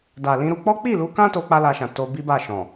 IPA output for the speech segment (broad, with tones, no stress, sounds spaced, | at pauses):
d a˨ l ĩ˧ ɾ u˧ k͡p ɔ˦ k͡p i˦˨ l u˨˦ k ã˦ t o˦ k͡p a˦ l a˧ ʃ ã˨ t o˧ b i˦ b a˦˨ ʃ ɔ̃˨